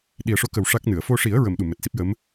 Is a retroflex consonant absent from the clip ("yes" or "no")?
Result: no